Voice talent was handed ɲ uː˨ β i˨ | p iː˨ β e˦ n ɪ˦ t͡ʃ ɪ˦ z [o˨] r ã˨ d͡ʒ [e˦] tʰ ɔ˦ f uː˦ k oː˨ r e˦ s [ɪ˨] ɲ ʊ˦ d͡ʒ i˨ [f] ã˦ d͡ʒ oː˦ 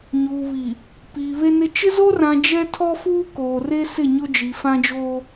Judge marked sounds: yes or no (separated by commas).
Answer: no, no, no, yes